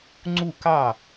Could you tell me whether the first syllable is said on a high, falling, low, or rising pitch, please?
falling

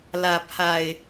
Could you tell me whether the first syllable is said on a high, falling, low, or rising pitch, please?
low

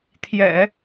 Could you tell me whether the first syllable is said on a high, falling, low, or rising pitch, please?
low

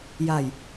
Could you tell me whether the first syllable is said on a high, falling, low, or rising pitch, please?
low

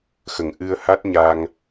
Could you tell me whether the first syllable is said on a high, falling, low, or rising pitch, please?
low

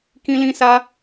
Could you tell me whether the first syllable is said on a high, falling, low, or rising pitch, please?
high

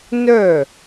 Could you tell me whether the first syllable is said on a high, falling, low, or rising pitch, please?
falling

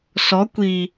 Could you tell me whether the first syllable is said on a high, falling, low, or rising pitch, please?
rising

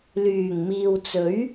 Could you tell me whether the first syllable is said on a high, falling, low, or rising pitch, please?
low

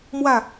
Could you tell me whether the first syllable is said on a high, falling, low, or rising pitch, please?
falling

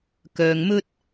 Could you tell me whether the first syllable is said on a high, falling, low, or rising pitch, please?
low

